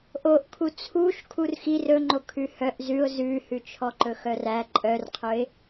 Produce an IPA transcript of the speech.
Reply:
ʔoʔkʰu t͡sʰuʃ kʰurxi rɵŋ͡ǃo kʰʉhœʔ zʉʊ̯ zʉhʉ t͡ʃʰɔǃɵxœræ ǃʼœrqʰɵɪ̯

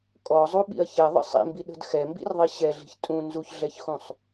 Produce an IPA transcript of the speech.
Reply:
kʼɔzˤuɓḭɐ̯ çɛðˤə̰ sˤḭmbiɗə̤d xɛmbḭrðˤi ɕɛɮi̤ç tʼũ nzuçɮɛçxũsˤ

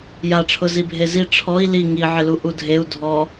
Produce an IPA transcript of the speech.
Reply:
jaʈ͡ʂʰʊ zibʱezi ʈ͡ʂʰɔi̯ li ŋiʕɪlu ʔudʱeu̯ dʱɔ

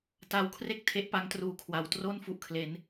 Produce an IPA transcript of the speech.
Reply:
ta˧wkʰre˥˩k̚ tʰe˦˥ʔpa˦˥ŋtruː˨˩kʰwa˩˦w tro˥˩n fu˨˩ʔkʰle˩˦n

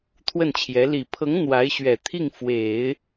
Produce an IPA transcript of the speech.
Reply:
t̪ʰwə˥˩nt͡ɕʰjɛ˧˥ li˨˩pʰɤ˧˥ŋ n̪wa˧˥ɪ̯ɕɥɛ˨˩ t̪ʰi˥˩ŋfwe˨˩˦ɪ̯

